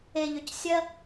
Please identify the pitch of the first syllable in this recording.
low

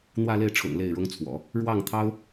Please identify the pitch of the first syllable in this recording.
falling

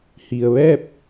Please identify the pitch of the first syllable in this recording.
low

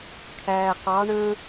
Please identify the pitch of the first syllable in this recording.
low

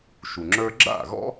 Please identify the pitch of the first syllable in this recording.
low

